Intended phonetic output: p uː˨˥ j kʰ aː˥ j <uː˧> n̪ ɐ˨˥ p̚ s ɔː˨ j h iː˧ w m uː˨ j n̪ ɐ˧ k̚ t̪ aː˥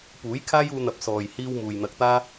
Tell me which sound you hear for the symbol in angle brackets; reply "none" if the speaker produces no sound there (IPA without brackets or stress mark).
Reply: uː˧